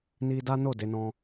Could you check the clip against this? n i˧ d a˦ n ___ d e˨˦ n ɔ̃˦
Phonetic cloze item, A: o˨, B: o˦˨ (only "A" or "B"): B